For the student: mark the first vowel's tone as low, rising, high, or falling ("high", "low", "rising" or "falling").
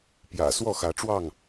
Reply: low